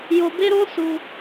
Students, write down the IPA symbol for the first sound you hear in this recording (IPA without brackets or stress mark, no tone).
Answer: j